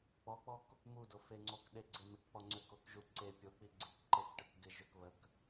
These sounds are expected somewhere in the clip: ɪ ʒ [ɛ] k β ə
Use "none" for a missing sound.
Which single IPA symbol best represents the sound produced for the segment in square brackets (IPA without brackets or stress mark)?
ø